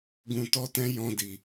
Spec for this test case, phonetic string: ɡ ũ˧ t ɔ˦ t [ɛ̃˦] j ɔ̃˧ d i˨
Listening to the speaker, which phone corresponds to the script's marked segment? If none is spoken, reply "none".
ɛ̃˦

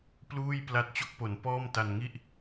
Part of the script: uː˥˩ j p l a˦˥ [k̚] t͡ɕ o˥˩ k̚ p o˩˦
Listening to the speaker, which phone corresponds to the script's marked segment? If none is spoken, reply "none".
t̚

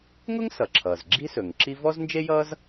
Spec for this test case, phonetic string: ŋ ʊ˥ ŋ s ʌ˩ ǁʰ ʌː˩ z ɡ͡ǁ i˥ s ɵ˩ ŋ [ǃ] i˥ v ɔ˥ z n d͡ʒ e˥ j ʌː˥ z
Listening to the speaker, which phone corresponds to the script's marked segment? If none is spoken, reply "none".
ǁ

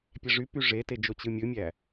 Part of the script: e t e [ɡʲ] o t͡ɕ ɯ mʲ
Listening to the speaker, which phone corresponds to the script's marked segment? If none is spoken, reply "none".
d͡ʒ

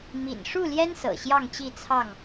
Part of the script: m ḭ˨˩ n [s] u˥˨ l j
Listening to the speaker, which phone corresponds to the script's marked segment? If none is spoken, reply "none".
ʂ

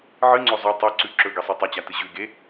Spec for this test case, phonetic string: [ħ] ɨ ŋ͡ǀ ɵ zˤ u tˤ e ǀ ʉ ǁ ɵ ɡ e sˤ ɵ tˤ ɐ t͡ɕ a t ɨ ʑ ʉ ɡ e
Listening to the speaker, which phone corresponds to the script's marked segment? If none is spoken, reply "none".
ʕ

